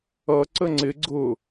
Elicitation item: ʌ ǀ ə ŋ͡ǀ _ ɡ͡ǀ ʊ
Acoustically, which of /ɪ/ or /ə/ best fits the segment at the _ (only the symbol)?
ɪ